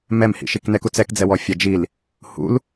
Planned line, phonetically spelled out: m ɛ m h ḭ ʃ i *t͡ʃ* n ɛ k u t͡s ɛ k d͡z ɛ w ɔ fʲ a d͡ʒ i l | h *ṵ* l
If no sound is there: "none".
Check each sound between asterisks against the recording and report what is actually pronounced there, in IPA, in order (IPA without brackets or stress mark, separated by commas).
k, ṵ